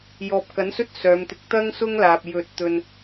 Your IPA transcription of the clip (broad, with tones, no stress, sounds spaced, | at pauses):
j ɔː˨ p̚ k ɐ˨˥ n s ɵ˥ t̚ s œː˨˧ m t̪ ɪ˧ k̚ t̪ ɐ˥ ŋ s ʊ˥ ŋ l aː˨ p̚ j ɵ˧ t̚ t̪ ɵ˧ n